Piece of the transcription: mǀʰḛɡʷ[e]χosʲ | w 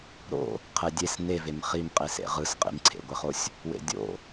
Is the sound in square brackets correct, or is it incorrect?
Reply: correct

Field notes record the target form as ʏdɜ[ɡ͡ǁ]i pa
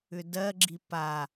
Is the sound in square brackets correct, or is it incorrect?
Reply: correct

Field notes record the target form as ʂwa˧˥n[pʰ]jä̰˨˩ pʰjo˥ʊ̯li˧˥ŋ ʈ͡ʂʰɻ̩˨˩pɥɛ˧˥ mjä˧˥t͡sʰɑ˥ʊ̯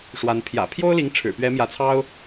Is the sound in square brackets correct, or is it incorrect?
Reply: correct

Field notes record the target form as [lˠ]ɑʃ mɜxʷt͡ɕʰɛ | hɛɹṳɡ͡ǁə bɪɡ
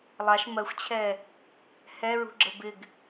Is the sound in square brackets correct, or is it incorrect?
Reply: correct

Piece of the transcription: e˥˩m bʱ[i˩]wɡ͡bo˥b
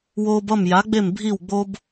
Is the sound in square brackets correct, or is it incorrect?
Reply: incorrect: i˥˩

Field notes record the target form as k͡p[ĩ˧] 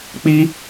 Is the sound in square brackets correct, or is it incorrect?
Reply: incorrect: i˧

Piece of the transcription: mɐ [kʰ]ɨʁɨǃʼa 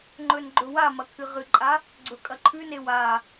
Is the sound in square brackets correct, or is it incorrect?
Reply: correct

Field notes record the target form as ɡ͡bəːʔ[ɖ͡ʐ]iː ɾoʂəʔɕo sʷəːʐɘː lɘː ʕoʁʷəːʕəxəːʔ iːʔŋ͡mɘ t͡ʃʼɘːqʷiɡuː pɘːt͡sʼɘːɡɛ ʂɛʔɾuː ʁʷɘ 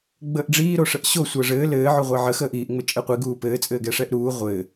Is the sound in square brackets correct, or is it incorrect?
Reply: correct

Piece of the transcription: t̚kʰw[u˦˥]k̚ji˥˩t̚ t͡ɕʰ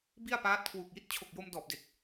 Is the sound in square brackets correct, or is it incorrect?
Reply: incorrect: u˨˩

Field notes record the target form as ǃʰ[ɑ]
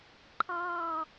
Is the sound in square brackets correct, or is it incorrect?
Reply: correct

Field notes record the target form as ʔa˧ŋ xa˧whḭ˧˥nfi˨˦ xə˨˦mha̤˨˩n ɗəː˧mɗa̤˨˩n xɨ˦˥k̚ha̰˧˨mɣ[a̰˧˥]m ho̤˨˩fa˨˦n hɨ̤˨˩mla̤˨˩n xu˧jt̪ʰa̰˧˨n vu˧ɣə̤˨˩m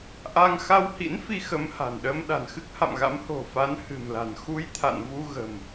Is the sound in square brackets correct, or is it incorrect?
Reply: correct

